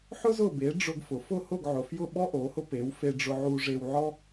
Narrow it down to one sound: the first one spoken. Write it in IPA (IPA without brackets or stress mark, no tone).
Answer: ħ